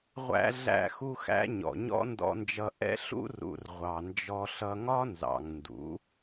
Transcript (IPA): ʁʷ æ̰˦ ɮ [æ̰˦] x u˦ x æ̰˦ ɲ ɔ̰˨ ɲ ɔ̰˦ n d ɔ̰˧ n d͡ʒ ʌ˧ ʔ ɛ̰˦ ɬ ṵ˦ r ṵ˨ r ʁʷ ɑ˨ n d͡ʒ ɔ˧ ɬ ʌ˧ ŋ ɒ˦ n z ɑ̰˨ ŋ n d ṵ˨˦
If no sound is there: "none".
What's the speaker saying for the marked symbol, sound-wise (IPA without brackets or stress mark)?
æ̰˦